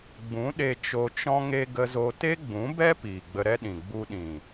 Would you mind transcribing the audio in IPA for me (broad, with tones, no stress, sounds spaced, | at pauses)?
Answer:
ɡ͡b ũ˨˦ ɗ e˧ t͡ʃ o˧ t͡ʃ ɔ̃˦ ŋ e˦ ɡ ə˧ z o˧ t e˦ ɡ͡b ũ˨˦ b ɛ˦ p iː˨ ɡ͡b ə˧ ɾ ɛ˦ ɗ ĩ˨ ɡ͡b u˧ ɗ ĩ˨